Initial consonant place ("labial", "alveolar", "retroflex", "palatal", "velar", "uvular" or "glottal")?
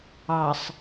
alveolar